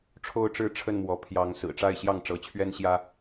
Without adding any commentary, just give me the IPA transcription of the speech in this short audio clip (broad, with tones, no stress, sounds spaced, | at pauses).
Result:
ʈ͡ʂʰ o˥˨ ʊ̯ ʈ͡ʂ ɻ̩˥˨ ʈ͡ʂʰ ə˥˨ n m w ɔ˨˦ pʰ j ɑ˨˦ ŋ s ɹ̩˨˩ ʈ͡ʂ a˥˨ ɪ̯ ɕ j ɑ˥˨ ŋ ʈ͡ʂ ɤ˨˦ t͡ɕʰ ɥ ɛ˦ n ɕ j ä˦